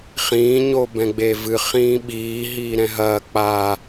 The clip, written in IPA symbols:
χ ĩː ɲ o b ɛ̃ ɡ͡b e v ɨ χ ĩː ɓ iː ɦ iː ɾ ɛ̃ ɦ ɐː k͡p a

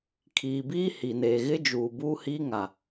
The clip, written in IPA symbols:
kʰ iː˨ b iː˦ h i˨ n eː˨ ɣ ɪ˦ d͡ʒ uː˨ b uː˦ h iː˦ ŋ a˨

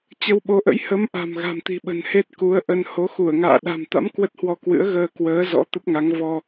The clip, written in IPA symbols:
t͡ɕ ə˧ w ɓ o˨˦ ʔ ə̰˧˥ j h ə˨˦ m ʔ a̤˨˩ m ɣ a̤˨˩ m t̪ i̤˨˩ ɓ ə̤˨˩ n h e˦˥ t̚ k u˨˦ ə̯ ʔ ə˧ n h o˨˦ x u˧˩ ə̯ ŋ a̰ː˧˨ ɗ a̤˨˩ m t̪ a̰˧˥ m k w ə˦˥ t̚ h w ɔ˧ k w ɨ̰˧˥ ə̯ ɣ əː˧ k w əː˨˦ z ɔ̰˧˥ t̪ ə˦˥ p̚ ŋ a˨˦ ŋ v ɔ˧

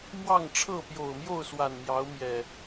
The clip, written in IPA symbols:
m w ɑ˥˨ ŋ ʈ͡ʂʰ ɤ˥˨ p j o˨˩ ʊ̯ m j o˥˨ ʊ̯ s w a˨˩ n m j ɑ˨˦ ʊ̯ m j ɛ˨˩

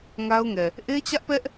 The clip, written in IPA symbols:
ŋ a˦ ʊ̯ ŋ ɛ˨ | ʔ e˦ t͡ɕ ä˦ ʔ p ɛ˦ ʔ

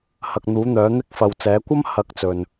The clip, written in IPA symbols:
h ɐ˧ k̚ n̪ uː˨˥ n̪ œː˨˥ n̪ ɪ˥ k̚ f ɐ˧ w t͡s ɛː˨˥ kʷ ɐ˥ m h ɐ˨˥ k̚ t͡s ɵ˨ n

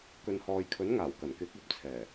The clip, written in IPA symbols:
k ɵ˨ n h ɔː˨ j kʰ ɵ˨˥ n ŋ aː˨˩ w k ɐ˨˩ n k ɪ˨˥ k̚ ɐ˨ p̚ t͡sʰ ɛː˨˩

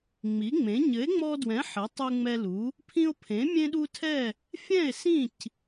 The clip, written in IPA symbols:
ŋ͡m i˨˥ ŋ͡m ẽ˨˥ ɲ ɘ˨˥ e̯ ŋ͡m ɔ˦ d w ɛ̃˨˥ ħ ɘ˨˥ tˤ u˦ ŋ͡m ɛ˦ l u˨˥ | pʰ ĩ˦ o̯ pʰ ẽ˨˥ mʲ ẽ˦ ɗ u˦ tʰ ɛ˦˨ | fʲ ɛ̃˦˨ e̯ s ĩ˦˨ c

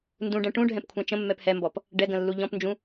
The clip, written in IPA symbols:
n d ũ ɖ ɛ̃ ʈ ũ ɖʱ ɛ̃ p kʷʰ ɛ̃ t͡ʃ ə̃ mː ɛ p h ɛ m b ɔ p | ɖ ɛ ɡ ə̃ lː u ʎ ɔ̃ p n d͡ʒ ũ

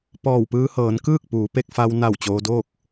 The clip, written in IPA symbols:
p ɔː˧˩ w p ɯː˧ h ɤː˩˧ n k ɯː˥˨ k̚ p uː˩˧ p e˧ k̚ f a˧ w n a˧˩ w t͡ɕ oː˧ d oː˥˨ k̚

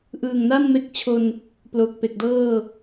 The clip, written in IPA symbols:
ʔ ɯː˨˩ ŋ n a˥˩ n m e˦˥ k̚ t͡ɕʰ o˧ n | p l o˨˩ k̚ p e˨˩ k̚ d ɤː˥˩

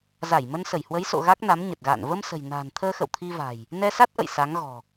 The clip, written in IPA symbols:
z a˧˩ j m ə˧ n s ə˧˩ j h w ə˨˦ j s o̰˧˨ ɣ a˦˥ k̚ n a˨˦ m ɲ ə˨˩ t̚ ɣ a̰ː˧˨ n v ə˧ m s ə̤˨˩ j n a̤ː˨˩ n t̪ʰ əː˧ x ə̰˧˨ w t̪ʰ i˧ v a̤˨˩ j | n ɛ˧ s a˦˥ t̚ ʔ ə̰˧˨ j s a˨˦ ŋ ɣ ɔ̤˨˩

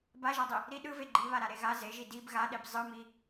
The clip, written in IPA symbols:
b a ʒ a dˤ i | ɾ i ɗ ɯ v e ɡ͡ǃ i β a ɾ a ɾ e ɣ a z e ʒ i d i b ɣ a ɗ e b zˤ ɯ m i

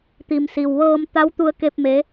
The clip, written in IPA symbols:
t̪ i˩ m s i˩ w ʋ ɤː˧ m t̪ a˧˥ w t̪ u˧ ə̯ k e˧ p̚ m e˧˥

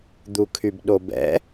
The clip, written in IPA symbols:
d̪ u kʰ y b ɗ o b ɛ̰

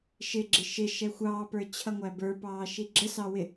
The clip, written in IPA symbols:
ʃ ɪ ɡ͡ǁ ɪ ʃ ɪ ʃ ɛ xʷ ɑː p ə˞ t͡ɕʰ ʌ ŋʷ æ b ə˞ p ɑː ʃ i ɡ͡ǁ ə s ɑ w ɪ

